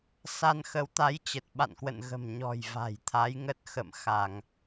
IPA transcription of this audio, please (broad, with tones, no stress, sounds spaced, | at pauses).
s a˧ n x ə˨˦ w t̪ a˨˦ j t͡ɕ ə˨˩ t̚ ɓ a̰˧˨ n k w ə̰˧˨ n ɣ ə̤˨˩ m ɲ ɔ̤˨˩ j v a̤˨˩ j t̪ʰ a˨˦ j ŋ ə˦˥ t̚ x ə̰˧˨ m x a˧˩˨ ŋ